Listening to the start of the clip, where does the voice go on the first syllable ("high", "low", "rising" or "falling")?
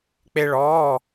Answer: high